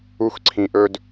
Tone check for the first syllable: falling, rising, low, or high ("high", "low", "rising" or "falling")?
high